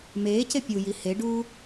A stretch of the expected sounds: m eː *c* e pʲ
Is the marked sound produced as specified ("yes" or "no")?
yes